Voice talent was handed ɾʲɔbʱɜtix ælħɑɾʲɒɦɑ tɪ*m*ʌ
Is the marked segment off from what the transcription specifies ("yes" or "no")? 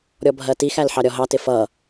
yes